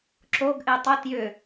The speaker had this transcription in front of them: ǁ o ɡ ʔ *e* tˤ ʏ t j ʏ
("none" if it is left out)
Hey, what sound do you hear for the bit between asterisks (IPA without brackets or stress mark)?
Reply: e